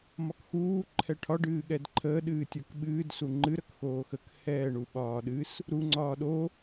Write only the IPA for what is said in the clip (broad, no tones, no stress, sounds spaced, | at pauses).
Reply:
m ɒ k x uː ǃʰ ɛ ʈʰ ɒ ɖ ɨː ɠ ɛ d ǃʰ əː ɗ ɨː tʲ ə˞ k ɓ ɨː d s u ŋ͡ǃ ɨ ɾ ə k x oː x ə k h ɛː ɳ u ɓ ɒː ɗ ɨ s | ɾ u ŋ͡ǀ ɒː ɗ o